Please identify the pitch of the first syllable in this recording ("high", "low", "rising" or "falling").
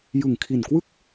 low